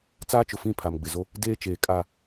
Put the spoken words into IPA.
t͡s aː˦ t͡ʃ ʊ˨ f ĩ˦˨ pʰ a˨ m ɡ͡b ɪ˨ z o˦ | d eː˦ t͡ʃ eː˨ kʼ a˦˨

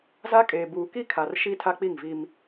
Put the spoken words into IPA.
z a˦ kʼ eː˨ b uː˨ k i˦ kʰ a˨ r ʃ i˦ tʰ a˦ k͡p i˦˨ ŋ v i˦ m

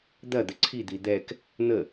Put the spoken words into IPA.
d̪ ɐ d̪ ə ǀʰ i d̪ i d̪ ɛ k | n̪ ə

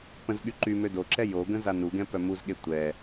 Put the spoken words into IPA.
p ə̃ z ɠ y ǃ y m ø d o ǁ ɛ j o ɡ ə̃ z a n u ɡ ɛ̃ p œ m u z ɠ e tʷ ɛ

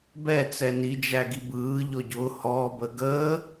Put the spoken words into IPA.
b ɛ t͡s ɛ n i d͡ʒ æ ɡ i b ɯː ʎ ɔ ɟ ʊ h ɔ b ə ɡ əː

